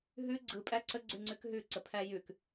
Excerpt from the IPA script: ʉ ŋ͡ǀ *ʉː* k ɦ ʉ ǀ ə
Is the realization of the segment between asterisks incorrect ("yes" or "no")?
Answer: yes